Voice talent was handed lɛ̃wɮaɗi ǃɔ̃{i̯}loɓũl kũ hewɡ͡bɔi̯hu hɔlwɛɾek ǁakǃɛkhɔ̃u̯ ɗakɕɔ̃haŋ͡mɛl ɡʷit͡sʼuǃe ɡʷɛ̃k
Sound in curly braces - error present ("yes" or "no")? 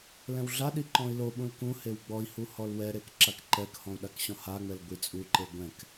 no